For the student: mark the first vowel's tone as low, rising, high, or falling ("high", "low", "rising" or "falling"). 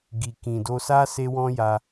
low